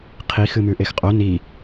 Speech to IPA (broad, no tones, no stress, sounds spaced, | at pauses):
qʰ i x ɨ m ʉ ʔ e x qʼ o n i